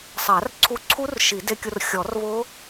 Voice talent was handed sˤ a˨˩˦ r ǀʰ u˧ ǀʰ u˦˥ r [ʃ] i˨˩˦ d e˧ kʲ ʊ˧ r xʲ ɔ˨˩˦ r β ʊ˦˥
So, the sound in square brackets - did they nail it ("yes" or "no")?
yes